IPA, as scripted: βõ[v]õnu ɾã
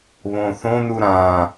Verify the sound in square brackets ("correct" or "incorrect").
incorrect